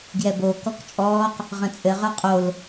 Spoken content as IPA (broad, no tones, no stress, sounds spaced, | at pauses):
ɡ j ɛ b o k ɔ k t͡ʃʼ ɔː q | ʁ ə̃ t͡sʼ ɘ ʁ ə˞ qʼ o l